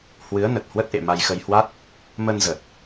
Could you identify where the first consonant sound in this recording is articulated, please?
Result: glottal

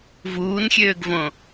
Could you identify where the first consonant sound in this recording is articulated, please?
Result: labial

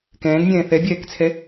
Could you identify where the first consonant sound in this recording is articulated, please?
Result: velar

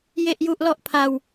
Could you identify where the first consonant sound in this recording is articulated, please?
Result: palatal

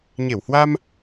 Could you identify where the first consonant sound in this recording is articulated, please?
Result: palatal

